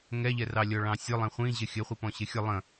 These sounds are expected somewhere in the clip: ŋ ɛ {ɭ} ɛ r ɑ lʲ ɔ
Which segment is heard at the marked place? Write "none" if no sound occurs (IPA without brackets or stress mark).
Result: ʎ